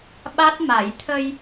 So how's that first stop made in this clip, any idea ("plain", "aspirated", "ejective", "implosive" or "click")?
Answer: implosive